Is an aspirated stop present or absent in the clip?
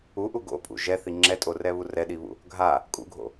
absent